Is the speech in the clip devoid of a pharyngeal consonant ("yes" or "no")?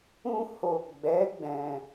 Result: yes